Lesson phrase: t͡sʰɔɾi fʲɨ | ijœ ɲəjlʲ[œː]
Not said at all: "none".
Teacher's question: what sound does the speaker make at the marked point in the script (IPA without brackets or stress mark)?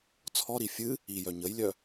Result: œ